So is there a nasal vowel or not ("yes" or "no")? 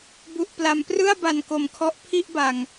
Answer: no